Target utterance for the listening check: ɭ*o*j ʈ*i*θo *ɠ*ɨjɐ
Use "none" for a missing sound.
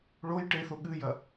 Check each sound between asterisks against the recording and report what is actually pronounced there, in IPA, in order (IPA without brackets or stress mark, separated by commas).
o, e, ɠ